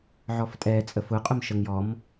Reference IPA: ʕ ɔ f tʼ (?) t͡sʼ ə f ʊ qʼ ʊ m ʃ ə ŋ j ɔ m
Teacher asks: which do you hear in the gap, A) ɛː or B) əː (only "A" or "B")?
A